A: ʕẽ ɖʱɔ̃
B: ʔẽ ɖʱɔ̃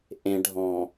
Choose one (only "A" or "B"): B